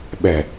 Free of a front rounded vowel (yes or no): yes